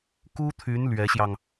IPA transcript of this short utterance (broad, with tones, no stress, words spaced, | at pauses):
ku˥t̪ʰy˧˥n lɥɛ˧˥ɕjɑ˧ŋ